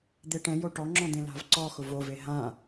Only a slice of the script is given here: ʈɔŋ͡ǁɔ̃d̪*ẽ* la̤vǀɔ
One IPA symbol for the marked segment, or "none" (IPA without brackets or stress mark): ẽ